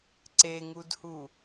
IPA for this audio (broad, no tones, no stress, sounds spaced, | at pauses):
ǀ e ŋ u d h u